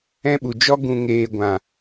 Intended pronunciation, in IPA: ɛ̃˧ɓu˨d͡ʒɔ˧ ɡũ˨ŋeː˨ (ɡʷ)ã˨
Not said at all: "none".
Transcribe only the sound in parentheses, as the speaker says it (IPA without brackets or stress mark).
ɡʷ